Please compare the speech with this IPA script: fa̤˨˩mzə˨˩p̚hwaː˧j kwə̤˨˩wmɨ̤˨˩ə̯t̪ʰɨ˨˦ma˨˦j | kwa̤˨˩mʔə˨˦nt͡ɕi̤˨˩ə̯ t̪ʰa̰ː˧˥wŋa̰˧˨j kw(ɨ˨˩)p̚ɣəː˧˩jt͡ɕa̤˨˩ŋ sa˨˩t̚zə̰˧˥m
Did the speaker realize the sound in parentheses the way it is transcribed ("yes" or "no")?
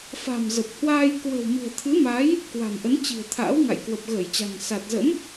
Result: no